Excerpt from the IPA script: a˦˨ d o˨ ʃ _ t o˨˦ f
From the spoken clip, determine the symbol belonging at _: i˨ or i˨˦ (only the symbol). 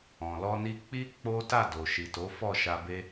i˨